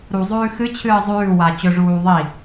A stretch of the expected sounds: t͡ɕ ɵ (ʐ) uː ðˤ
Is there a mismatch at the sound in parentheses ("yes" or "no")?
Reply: no